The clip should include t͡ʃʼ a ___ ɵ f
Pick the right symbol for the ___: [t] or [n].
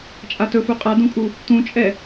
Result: t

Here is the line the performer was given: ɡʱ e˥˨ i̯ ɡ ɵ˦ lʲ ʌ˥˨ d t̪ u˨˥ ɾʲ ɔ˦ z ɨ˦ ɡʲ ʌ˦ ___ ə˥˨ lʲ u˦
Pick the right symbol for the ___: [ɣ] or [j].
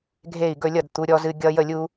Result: j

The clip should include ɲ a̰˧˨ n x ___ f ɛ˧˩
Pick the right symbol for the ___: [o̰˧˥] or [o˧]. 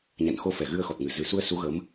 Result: o˧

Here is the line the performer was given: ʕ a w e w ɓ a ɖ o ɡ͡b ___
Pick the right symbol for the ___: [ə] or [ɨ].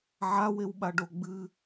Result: ɨ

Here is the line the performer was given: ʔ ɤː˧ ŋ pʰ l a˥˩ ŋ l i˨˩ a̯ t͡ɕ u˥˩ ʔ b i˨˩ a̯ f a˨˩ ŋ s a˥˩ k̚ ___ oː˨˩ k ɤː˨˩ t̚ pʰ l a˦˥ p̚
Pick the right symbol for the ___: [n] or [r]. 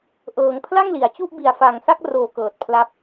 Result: r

